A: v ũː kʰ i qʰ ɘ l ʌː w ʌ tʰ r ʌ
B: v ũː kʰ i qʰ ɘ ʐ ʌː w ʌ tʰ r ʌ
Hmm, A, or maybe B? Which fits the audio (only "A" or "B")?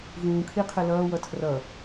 A